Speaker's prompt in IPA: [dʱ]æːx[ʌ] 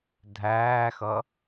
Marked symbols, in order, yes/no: yes, yes

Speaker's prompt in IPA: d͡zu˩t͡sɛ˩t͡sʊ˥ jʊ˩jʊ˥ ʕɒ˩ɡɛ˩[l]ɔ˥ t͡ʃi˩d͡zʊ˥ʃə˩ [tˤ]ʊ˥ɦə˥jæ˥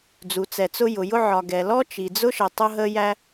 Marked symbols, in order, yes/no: yes, yes

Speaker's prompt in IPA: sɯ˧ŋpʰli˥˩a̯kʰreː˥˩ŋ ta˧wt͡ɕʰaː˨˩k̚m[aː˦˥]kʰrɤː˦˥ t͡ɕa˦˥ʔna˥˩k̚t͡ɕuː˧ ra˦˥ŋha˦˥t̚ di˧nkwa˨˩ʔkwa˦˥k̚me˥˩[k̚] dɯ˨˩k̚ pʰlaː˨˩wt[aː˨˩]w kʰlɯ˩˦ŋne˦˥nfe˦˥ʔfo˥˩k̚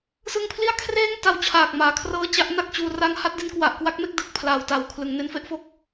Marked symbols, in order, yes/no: no, yes, no

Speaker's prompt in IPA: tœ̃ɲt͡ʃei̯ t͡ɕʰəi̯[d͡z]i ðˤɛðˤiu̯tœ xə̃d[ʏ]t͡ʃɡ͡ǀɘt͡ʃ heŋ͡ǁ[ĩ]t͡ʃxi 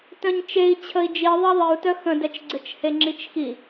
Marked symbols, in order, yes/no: no, no, no

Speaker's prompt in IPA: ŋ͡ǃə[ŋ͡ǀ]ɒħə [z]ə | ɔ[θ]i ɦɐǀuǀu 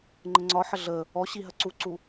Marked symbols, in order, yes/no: yes, no, no

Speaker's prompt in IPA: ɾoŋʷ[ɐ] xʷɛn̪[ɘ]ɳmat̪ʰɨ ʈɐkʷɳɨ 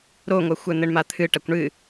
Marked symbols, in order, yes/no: yes, yes

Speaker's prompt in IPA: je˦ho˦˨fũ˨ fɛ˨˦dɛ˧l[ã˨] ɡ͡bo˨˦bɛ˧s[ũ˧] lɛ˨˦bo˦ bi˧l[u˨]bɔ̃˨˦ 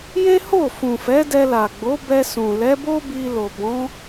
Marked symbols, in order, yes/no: no, no, no

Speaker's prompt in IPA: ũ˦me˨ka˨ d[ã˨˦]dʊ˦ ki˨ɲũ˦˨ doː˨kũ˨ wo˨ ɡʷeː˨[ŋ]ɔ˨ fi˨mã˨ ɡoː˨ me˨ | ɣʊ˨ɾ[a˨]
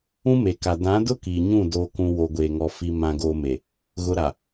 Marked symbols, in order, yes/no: yes, yes, yes

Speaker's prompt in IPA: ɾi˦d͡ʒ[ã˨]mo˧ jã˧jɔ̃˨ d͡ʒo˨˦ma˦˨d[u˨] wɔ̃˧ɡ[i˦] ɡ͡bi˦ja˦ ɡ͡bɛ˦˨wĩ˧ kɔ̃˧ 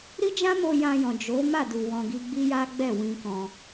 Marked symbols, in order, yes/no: no, yes, yes

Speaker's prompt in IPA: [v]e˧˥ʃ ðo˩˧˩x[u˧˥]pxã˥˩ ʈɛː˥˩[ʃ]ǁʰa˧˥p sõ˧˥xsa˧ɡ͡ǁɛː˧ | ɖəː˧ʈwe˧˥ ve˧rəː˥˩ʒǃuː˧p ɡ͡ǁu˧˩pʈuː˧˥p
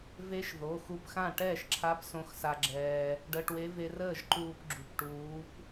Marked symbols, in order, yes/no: yes, no, yes

